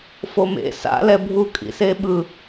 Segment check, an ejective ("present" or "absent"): present